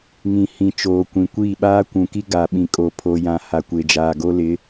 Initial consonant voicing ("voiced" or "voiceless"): voiced